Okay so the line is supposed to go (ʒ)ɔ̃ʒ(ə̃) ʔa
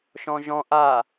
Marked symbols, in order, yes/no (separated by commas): no, no